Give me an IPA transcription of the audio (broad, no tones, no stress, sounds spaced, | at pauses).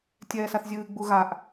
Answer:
tʲ ɛː s a θ zʲ ɨː ɡ͡b u ɣ a ʔ